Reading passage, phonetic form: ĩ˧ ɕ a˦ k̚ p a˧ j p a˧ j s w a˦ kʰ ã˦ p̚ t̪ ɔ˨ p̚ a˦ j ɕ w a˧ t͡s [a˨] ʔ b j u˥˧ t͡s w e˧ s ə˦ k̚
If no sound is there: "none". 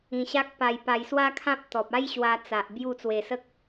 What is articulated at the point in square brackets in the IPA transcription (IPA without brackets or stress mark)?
a˨